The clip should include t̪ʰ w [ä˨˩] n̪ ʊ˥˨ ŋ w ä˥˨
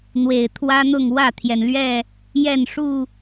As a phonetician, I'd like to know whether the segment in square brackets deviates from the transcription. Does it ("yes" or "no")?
yes